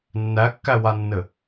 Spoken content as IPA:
nː æ kː æ w a nː ɘ

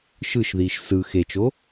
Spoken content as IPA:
ʃ ɯ ʃ ð iː ʃ s ɯ x e t͡ʃ o

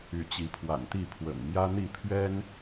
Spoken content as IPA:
y˨˦ t͡ɕ i˨˦ pʰ w a̰˨˩ n t̪ i˥˨ pʰ w ə̰˨˩ n m j ä˦ n̪ i˥˨ pʰ ɥ ɛ˦ n

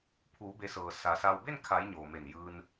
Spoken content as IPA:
pʰ uː˩˧ b e˩˧ s ɤː˩ s a˩˧ s a˧ w b e˥˨ n kʰ a˩˧ j ɲ oː˩ m e˧˩ n j ɯː˧ n

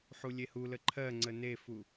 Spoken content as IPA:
ħ u lʲ e h u l ə ǃʰ ɜ ŋ͡ǀ ə n e f u

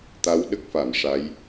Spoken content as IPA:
t̪ a˧˥ w ɗ ə˦˥ k̚ f a˨˩˨ m ʂ a˧˥ j

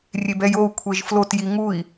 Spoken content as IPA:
rʲ e b ɛ j o u̯ kʷʰ e ʒ f l o t j i ŋ u i̯

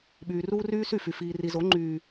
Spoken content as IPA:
ɓ yː˨ r uː˦ r yː˦ s y˦˨ f y˨ f iː˨ r i˨ z o˨˦ ŋ͡ǃ yː˦

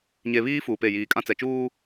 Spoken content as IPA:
ɲ e˨ β iː˦ f uː˨ p e˦˨ j iː˨ kʼ ã˦ t͡s ɛ˨ t͡ʃ uː˦

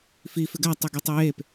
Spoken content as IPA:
f i f ɪ ɡ a tˤ ɯ ɡ y tˤ ɯ j e p

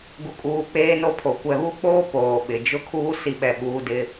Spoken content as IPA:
ɡ u˨ kʼ uː˨ k͡p eː˦ n o˦ pʰ o˨ kʷ ɛ˨ β u˦ k͡p oː˦ p oː˨ ɓ ɪ˨ d͡ʒ ʊ˦ kʰ uː˦ s i˦ ɓ ɛ˦˨ ɓ uː˦ d ɪ˦

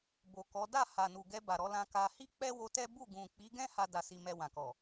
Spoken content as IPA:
b o˨ k ɔ˨˦ d a˦˨ h a˨ n u˨ ɡ ɛ˧ b a˨ ɾ ɔ˨˦ l ã˧ k a˧ h i˦ k͡p ɛ˦ w o˧ t ɛ˦ b u˦˨ ɡ ũ˨ k͡p i˨˦ ɡ ɛ̃˦ h a˦ d a˧ s i˧ m ɛ˧ w ã˨ k ɔ˨

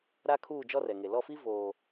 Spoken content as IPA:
ɾ a˦ kʰ uː˦˨ d͡ʒ ɔ˦ r ɛ˨ ŋ e˨ l ɔ˦˨ f i˦ v oː˨

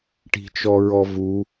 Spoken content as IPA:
ʈ i̤ t͡ʃ ɔ ɹ ɔ v u

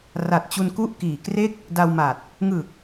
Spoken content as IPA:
r a˨˩ t̚ t͡ɕ u˧ n k u˥˩ ʔ k iː˨˩ k r e˥˩ k̚ | d a˧ w m a˨˩ t̚ | ŋ ɯ˨˩ k̚

